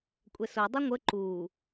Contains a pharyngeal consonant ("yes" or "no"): no